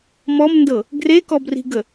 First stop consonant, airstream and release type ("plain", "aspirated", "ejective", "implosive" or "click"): plain